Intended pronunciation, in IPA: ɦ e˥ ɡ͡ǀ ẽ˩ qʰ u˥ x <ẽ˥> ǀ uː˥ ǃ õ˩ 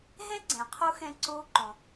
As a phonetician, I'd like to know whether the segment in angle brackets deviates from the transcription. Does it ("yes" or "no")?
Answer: yes